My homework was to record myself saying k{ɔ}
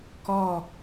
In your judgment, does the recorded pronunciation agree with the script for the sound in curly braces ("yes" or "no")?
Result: yes